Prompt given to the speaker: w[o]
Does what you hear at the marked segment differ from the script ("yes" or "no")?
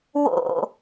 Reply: yes